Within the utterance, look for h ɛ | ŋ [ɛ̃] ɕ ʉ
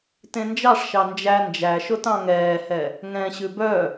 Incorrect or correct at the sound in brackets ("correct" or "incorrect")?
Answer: correct